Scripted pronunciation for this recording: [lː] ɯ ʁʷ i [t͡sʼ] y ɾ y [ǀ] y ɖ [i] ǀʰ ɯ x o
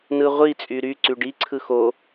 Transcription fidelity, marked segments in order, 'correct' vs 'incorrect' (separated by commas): incorrect, correct, correct, correct